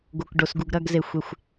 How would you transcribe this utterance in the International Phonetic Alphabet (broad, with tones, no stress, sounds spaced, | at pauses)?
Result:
ɡ o˨ k ɖ o˨ s ɡ u˨ ɡ ɾ ɐ˦˨ ɡ z e˨ xʷ e˨ xʷ